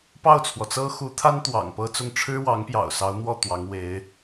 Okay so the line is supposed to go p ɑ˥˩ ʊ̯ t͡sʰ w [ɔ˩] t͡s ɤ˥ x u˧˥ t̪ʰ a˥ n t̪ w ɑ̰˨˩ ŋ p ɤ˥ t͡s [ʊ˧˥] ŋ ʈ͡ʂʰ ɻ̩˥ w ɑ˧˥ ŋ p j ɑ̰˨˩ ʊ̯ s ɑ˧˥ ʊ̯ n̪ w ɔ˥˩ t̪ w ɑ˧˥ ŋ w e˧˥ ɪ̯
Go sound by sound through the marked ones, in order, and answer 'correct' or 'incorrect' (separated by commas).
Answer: correct, incorrect